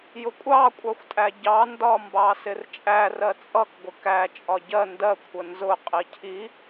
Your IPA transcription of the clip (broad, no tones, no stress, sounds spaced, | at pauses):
j ʊ kʷʼ ɑ kʷʼ ɑ xʷ tʼ æ ɟ ɑ n d ɒ m b ɑ s ɪ r t͡ʃʼ æ r ɜ t͡sʼ ʌ k ɡʷ ɪ k æ t͡ʃʼ ɒ ɟ ɜ n d ɜ kʷʰ ə n z ʊ qʼ i cʰ i